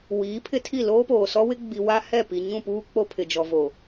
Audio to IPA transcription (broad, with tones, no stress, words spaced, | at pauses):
wiː˨˦pʰɪ˦tʰi˦˨ loː˦poː˨sɔ˦wɪ˦ ɡ͡bi˨wa˦ hɛ˦˨ pi˨ ɲũ˦˨puː˦k͡po˦ pʰɪ˨d͡ʒɔ˨ vo˨